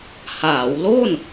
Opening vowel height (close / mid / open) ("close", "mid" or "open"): open